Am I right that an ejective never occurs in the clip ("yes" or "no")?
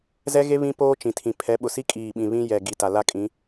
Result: no